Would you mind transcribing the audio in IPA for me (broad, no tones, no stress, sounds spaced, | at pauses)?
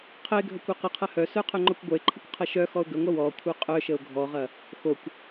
qʰ ə ɪ̯ ɡʱ ə kʷ œ q ə qʰ ɐ h œ s œ qʰ œ ŋ͡ǃ ɔ kʷ ɡʷ œ ɪ̯ ǃʰ ə kʷ qʰ ɐ ʃ œ x ɔ ʊ̯ ɡ ə ŋʷ ɐ w ɔ kʷʰ œ qʼ œ ʃ ə ʊ̯ ɡʱ ɔ ʁ ɐ | x o kʷ